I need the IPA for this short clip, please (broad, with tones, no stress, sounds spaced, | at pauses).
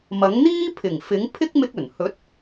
m ɐ˨˥ ŋ n̪ iː˥ pʰ ɪ˨˩ ŋ f ɪ˨˥ ŋ pʰ ɪ˥ k̚ m ɪ˧ k̚ ɵ˨˩ n h ɵ˨˥ t̚